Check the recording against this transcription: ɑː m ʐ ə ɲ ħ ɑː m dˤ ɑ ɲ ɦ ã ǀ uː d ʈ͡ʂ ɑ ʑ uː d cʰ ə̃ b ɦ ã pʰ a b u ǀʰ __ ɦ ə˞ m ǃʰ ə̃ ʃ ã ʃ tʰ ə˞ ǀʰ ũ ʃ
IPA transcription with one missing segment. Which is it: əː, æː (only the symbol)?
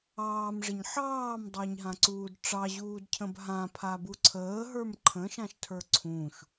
əː